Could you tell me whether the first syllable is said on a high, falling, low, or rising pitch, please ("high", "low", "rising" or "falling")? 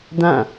falling